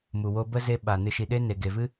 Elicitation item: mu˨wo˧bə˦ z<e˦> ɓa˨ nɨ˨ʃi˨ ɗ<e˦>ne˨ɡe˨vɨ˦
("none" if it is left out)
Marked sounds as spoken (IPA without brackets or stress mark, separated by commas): e˦, e˦